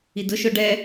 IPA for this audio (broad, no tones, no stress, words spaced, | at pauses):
idʊʃʊ ɖɛ